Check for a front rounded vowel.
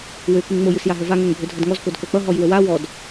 present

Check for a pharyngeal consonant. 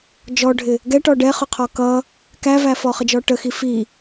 absent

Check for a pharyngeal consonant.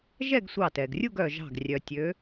absent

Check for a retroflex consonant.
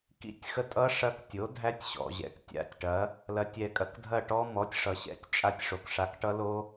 present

